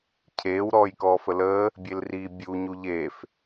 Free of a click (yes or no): yes